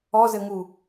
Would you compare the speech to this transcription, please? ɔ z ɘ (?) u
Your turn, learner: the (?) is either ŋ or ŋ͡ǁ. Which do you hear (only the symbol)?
ŋ